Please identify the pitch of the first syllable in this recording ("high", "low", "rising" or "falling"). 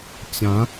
rising